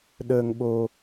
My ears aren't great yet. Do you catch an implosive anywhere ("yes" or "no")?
yes